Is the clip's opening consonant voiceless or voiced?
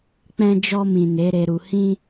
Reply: voiceless